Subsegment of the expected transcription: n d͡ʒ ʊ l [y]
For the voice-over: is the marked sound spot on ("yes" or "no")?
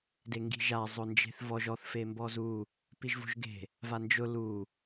no